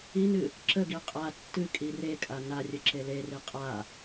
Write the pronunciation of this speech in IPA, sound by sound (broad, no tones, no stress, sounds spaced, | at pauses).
i n ɨ | ǁ ə ɡ i qʼ a tː ɨ kʼ i r e kʼ a n a rʲ ə ǁ e l e r i qʼ a